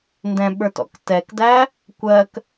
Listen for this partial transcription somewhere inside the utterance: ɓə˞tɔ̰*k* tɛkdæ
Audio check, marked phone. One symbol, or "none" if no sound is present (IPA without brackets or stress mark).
k